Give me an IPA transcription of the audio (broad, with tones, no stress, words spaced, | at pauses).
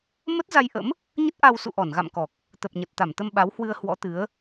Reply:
mə˦˥t̚za˧jʔə̰˧˥m | ɲə˦˥t̚ ʔa˧w sṵ˧˨ʔɔ˧˩nɣa̰˧˨mkɔ˨˩k̚ | t̪ə˨˩p̚ɲə˨˩t̚t̪a˧˩mt̪ə˧m ɓa˨˦whwɨ˧ə̯ hwɔ̰˧˥t̪ɨ˨˦ə̯